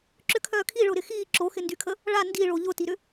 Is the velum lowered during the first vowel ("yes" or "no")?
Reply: no